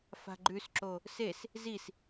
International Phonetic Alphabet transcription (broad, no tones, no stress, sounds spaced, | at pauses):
f a̤ ɡ͡ǃ ʉ s ǁ o | s e s | z i s